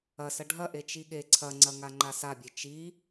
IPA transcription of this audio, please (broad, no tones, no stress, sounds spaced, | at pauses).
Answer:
ɐ s ɐ ɖʱ ɐ ʔ e t͡ʃ i ɠ e ǀʰ ɐ ŋ͡ǀ ɐ ŋ a ŋ͡ǃ a s a bʲ e t͡ʃ i